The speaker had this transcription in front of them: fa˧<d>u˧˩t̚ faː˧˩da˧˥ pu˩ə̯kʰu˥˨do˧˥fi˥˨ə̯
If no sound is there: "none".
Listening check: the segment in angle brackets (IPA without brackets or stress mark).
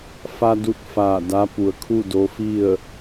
d